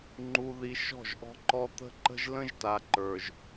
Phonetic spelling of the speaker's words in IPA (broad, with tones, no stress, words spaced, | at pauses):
ŋ͡ǃu˨ði˨ ʃɔ̤˦˨ʒʔɔ̤˦ǃɔ˦ t̪ə̤˦ ǃə̤˦ʒlə̃˦ʒta˨ǃə˞˨ʒ